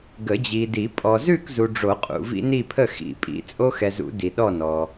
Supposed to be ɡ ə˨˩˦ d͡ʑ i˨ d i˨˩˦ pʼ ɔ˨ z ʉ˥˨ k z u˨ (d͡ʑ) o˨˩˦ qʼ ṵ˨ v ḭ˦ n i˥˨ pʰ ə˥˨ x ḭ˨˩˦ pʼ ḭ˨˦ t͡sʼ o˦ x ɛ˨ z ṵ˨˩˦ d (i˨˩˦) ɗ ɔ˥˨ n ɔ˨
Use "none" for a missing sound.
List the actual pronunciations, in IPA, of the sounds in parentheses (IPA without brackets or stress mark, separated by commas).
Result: ɖ͡ʐ, i˨